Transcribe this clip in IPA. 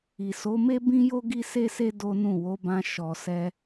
i˨ s o˨˦ m e˦ b ĩ˦ j o˦ ɡ i˦ s e˦ s e˦ d o˦ n ũ˦˨ w o˨˦ b ã˧ ʃ ɔ˨ s ɛ˧

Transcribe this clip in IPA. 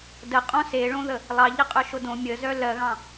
d ə qʼ õ s e ɭ õ ð ə | lˠ ɑ ʎ ə qʼ œ ʃ o d õ mʲ ə z œ l ɜ ɣ ɑ̃

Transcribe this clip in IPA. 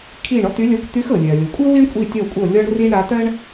kʰ i˦˨ ɳ ɔ˥ t̪ y˧˥ lʲ ɜ˧˥ kʷ t̪ y˧˥ x ɤ˩ lʲ ɜ˩ lʲ o˩ kʷʼ ɤ˥ w i˥ ɳ kʷʼ i˦˨ tʲ ɔ˦˨ kʷʼ ɤ˦˨ lʲ ɔ˥ ɳ r i˥ ɳ ɾ a˧˥ t̪ ɜ˥ ɳ

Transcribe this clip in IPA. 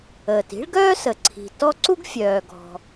əː˩ t i̤˥ ɭ ɡ œː˥ s ə˩ ǀʰ i̤˩ t ɔ˦ ǀ u˥ ɡ fʲ œː˩ ɡ ɔ̤˩

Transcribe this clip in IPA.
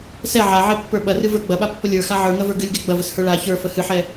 s ɛ ʕ a ʕ ɛ pː ə˞ ɓ ɐ r ɨ v ə˞ ɡ͡b ɐ ɓ a pː ə lʲ ə˞ x a ʕ ə˞ ŋ ɐ v ə˞ ɡ ɨ lʲ ɡ ɛ ɡ͡b ɐ v ə s h ə˞ ɭ a ç ə˞ f ə h ɨ ħ ɛ

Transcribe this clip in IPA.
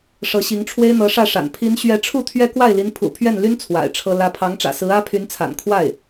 ʂ ɤ˧˥ ɕ i˧˥ ŋ ʈ͡ʂʰ w e˥ ɪ̯ n̪ ɤ˧˥ ʂ ä˥˩ ʂ a̰˨˩ n pʰ i˧˥ n ɕ ɥ ɛ˧˥ ʈ͡ʂʰ u˥˩ t̪ʰ ɥ ɛ˥ k w a˥˩ ɪ̯ l i˧˥ n pʰ ṵ˨˩ pʰ ɥ ɛ˥˩ n l y˥ n t͡sʰ w a̰˨˩ ɪ̯ ʈ͡ʂʰ ɤ˥ l ä˧˥ pʰ ɑ˧˥ ŋ ʈ͡ʂ ä̰˨˩ s ɹ̩˧˥ ä˥ pʰ y˧˥ n t͡sʰ a̰˨˩ n kʰ w a˥˩ ɪ̯

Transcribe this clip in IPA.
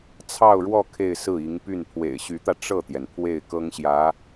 t͡sʰ ɑ˥˧ ʊ̯ ɻ w ɔ˥˧ kʰ e˥˧ ɪ̯ s ɹ̩˥˩ i˧˥ ŋ p y˥˩ n pʰ w ḛ˨˩ ɪ̯ ɕ y˧˥ t̪ ä˧ ʈ͡ʂ ɤ˥˩ t̪ j ɛ˩ n pʰ w e˥˩ ɪ̯ k ɤ˥ ŋ ɕ j ä˧˥

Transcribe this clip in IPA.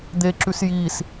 d̪ e ǁ ʉ s j i s

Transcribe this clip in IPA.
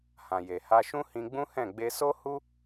h ã˨ j e˨ h a˧ ʃ ũ˦ h ĩ˧ ɡ͡b ũ˦ h ɛ̃˦˨ ɡ͡b e˧ s o˦ h u˦

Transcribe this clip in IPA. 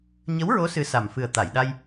ɲ ə˧˥ w ɹ o˧˥ s ɨ˧˥ s a˨˩ m f ɨ˨˩ ə̯ t̪ a˨˩˨ j ɗ a˧ j

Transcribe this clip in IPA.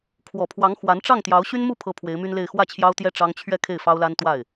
kʰ w ɔ˨˩ pʰ w ɑ˧˥ ŋ x w a˧˥ n ʈ͡ʂ ɑ˥˩ ŋ t̪ j ɑ˧˥ ʊ̯ ɕ y˥ n m u˥˩ pʰ ɤ˧˥ pʰ w e˧˥ ɪ̯ m y˥ n l e˥˧ ɪ̯ x w ä˥˩ t͡ɕʰ j ɑ˥ ʊ̯ t̪ j ɛ˥ ʈ͡ʂ ɑ˥ ŋ t͡ɕʰ ɥ ɛ˥˧ kʰ e˥˩ ɪ̯ f ɑ˥ ʊ̯ l a˥ n t̪ w a˥˩ ɪ̯

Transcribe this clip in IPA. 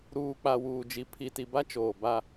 ɾ uː˨ k͡p a˨ w uː˨ d͡ʒ i˨ pʰ i˨ t i˨ b a˦ t͡ʃ oː˨ b a˦

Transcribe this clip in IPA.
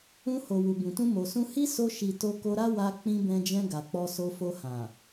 ũ˧ h o˨ w u˨ b ũ˨ t ũ˧ m o˨ s ũ˧ h i˦ s o˧ ʃ i˨ t o˧ k o˧ ɾ a˦ w a˧ k͡p ĩ˧ b ɛ̃˧ d͡ʒ ɛ̃˧ ɡ a˨ k͡p ɔ˧ s o˧ f o˧ h ã˨

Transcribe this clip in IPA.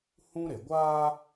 h ũ˦ ɾ e˨ ɡʷ aː˦

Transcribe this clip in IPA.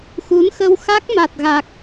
x u˨˦ n x ə˧ w x a˦˥ k̚ m a˨˩ t̚ ɣ a˨˩ k̚

